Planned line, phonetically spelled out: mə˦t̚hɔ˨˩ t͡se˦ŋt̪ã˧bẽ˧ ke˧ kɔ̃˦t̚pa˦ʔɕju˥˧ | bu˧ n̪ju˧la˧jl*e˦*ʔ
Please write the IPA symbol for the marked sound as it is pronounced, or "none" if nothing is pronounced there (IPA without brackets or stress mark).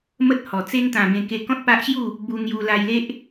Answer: e˦